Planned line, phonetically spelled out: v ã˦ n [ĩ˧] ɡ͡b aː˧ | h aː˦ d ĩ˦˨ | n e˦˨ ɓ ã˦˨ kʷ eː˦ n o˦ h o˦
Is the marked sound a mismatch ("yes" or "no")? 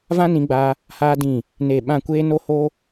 no